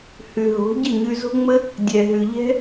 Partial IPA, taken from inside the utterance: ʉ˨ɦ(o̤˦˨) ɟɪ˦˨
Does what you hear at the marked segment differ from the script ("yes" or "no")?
yes